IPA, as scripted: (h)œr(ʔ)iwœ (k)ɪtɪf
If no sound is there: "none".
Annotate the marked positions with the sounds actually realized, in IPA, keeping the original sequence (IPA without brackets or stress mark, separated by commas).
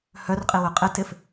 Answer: h, qʼ, qʼ